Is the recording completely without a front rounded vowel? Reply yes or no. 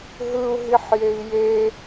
yes